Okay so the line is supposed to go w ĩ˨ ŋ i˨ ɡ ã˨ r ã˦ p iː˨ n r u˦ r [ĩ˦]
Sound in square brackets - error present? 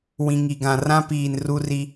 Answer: yes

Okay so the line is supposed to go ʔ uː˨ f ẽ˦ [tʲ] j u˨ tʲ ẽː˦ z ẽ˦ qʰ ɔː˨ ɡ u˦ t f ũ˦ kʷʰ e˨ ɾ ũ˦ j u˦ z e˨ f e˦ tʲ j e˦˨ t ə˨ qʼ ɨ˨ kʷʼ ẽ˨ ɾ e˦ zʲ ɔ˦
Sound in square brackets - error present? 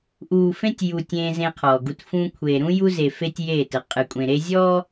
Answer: no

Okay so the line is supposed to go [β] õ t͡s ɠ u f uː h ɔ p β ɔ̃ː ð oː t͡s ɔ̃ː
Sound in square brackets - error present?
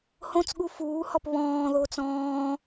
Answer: yes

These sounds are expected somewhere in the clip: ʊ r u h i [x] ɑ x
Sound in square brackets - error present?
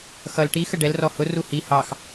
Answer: yes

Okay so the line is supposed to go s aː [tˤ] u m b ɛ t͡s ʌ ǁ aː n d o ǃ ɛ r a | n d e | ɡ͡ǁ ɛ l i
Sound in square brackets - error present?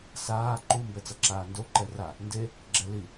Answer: yes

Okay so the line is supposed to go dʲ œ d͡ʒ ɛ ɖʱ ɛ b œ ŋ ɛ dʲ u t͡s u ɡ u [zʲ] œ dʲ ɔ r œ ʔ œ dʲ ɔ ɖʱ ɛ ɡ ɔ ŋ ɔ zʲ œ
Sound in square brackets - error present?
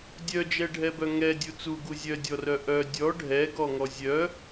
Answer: no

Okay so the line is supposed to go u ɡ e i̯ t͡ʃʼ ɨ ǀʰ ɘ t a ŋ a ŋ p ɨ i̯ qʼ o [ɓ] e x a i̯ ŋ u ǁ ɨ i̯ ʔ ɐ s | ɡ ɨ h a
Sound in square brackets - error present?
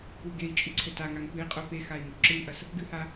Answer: yes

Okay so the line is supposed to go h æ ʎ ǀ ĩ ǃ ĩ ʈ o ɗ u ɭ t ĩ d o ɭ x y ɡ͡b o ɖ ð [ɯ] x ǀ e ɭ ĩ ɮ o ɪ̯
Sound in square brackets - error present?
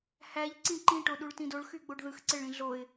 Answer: no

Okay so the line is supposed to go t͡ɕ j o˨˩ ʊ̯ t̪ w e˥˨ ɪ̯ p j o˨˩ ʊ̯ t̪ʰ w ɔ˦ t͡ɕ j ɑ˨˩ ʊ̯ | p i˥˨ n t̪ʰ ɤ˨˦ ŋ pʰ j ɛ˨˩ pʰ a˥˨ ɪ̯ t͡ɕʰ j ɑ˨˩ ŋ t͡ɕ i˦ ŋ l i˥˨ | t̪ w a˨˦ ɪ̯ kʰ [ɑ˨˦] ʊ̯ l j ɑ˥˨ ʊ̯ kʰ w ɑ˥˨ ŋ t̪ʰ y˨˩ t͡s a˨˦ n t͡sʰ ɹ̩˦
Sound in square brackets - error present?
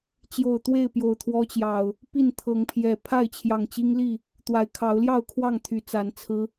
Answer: no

